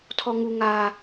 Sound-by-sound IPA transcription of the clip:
tʰɔ˦ŋu˦ŋaː˦

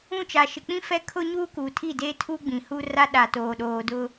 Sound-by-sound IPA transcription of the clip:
ũ˦˨t͡ʃa˨ʃɪ˨ k͡pĩ˦ fɛ˦kʰʊ˦ɲuː˦ kuː˨tʰi˦˨ deː˦tʰuː˦ ɡ͡bĩ˨hu˦ ra˦ɗa˨ toː˨ɗoː˨dʊ˦

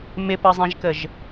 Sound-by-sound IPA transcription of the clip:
mɪpəzˤẽʒkəʒ

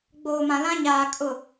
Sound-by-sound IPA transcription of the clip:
ɡ͡boː˨mã˨ lã˦ɲaː˨ kʼʊ˨

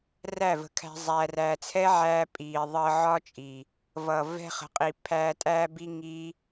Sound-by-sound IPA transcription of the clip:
ræ˦˨və̤˧kʰæ̤˧ zˤæ˧ræː˧ t͡sʰɛ˦ʕæː˧ pʼiː˨ ðˤəː˧ʕɒ˦t͡ʃʼi˨ | vʌ˨vɛ̤˧χə̤˨qʼi˨ pʰæː˧tʼæː˦bi˦ ŋi˦

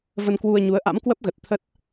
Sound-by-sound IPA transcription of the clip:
və˧nkwu˧ə̯ɲu˨˦ə̯ʔa̰˧˥m kwə˦˥p̚ɣə˨˩t̚t̪ʰə˦˥t̚

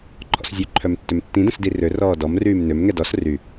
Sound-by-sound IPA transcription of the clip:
ǃʰɔ̰szʲøǃʰœm tːømtːĩdə̃s dirørɔː dɔmryːm nømŋɛ dɔs ry

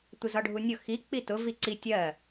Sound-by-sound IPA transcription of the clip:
tʷɪzɒɖʱunʲʊ xi k͡pitʊ viǀi tʲɜ

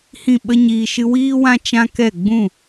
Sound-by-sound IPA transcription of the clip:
hĩ˦˨ɓə˦ɲiː˧ ʃɨ˧wiː˦wã˦ t͡ʃã˦kɛ˦˨ ɡ͡bũ˦˨

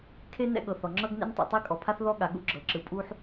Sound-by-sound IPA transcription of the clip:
kʰe˥ nɛ̰˥ɠɤ˩θɔ˩ ŋ͡ǁɤ˥ɡnḛ˥ntˤḭ˩ tˤe˥kʼɔ˩pʰa˥θ ðɔ˥ɠa˩ ɠṵ˥ɡ͡ǁɤ˩ǁɯ˩ pʼu˥ħ

